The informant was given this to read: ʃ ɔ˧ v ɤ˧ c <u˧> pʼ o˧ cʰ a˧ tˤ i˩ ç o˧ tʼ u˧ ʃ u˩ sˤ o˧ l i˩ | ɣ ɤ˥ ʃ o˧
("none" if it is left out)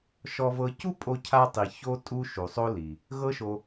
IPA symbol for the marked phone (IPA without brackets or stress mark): u˥